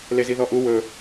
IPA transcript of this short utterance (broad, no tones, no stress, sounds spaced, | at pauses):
l e z i ð ɔ ʔ u w ɵ